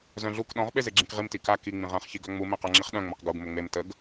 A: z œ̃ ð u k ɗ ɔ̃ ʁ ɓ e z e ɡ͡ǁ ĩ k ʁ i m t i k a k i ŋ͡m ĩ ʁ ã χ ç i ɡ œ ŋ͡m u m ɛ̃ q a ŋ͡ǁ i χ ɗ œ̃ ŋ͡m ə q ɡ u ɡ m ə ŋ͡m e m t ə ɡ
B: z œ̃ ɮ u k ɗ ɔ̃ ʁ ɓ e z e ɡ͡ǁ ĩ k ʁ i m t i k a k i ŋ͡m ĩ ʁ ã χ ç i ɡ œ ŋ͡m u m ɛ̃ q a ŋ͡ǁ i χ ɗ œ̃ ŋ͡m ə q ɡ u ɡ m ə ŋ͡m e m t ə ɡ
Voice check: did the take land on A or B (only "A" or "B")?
B